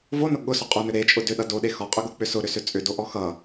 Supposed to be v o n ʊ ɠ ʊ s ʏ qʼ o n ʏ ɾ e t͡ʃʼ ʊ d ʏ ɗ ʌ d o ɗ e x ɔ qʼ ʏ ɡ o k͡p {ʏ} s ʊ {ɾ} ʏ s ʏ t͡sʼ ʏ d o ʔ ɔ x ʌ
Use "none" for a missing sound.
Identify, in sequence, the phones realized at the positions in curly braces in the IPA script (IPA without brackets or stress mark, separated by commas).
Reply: ʏ, ɾ